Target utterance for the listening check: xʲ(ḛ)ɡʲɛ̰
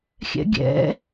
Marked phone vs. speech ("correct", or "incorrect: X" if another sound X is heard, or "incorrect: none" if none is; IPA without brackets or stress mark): incorrect: ɛ̰